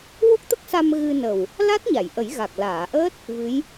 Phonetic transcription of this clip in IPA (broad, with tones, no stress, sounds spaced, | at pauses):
w o˦˥ k̚ t̪ ə˦˥ k̚ s a˧ m ɣ ɨ˧ n ə˨˩ w | l a˦˥ t̚ ɲ a˨˩˨ j ʔ ə˨˩˦ j ɣ a˨˩ k̚ l aː˨˩˨ ʔ əː˦˥ t̚ | v ɨ˧˥ j